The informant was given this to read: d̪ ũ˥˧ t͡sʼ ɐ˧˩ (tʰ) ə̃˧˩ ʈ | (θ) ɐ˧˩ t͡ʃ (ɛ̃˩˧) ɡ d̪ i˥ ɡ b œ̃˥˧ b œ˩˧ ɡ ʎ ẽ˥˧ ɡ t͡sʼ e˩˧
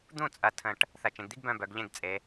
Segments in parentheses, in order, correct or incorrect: correct, correct, incorrect

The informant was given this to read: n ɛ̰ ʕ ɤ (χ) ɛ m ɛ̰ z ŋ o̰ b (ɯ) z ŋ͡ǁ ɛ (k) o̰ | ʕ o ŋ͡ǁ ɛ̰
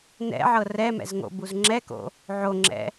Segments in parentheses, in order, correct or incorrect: incorrect, incorrect, correct

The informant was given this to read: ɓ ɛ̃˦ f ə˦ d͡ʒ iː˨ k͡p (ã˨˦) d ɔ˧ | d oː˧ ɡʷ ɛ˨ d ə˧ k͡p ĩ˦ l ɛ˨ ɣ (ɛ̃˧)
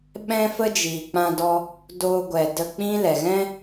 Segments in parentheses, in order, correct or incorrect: incorrect, incorrect

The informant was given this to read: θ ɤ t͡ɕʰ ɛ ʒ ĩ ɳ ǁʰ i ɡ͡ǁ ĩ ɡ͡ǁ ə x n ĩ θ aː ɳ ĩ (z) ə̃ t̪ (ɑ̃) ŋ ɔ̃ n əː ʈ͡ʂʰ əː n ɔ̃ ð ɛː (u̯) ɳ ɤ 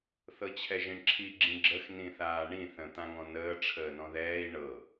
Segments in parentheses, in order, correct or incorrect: incorrect, incorrect, incorrect

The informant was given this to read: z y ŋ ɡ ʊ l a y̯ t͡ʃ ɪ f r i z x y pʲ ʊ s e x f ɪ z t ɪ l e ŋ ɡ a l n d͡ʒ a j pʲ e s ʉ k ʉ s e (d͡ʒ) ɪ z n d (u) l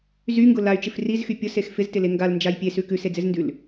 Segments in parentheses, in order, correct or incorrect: incorrect, incorrect

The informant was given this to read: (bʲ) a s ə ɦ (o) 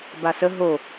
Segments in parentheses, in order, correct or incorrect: incorrect, correct

